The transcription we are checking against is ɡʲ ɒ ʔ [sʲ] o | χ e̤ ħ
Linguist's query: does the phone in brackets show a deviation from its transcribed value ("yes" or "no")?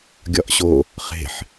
yes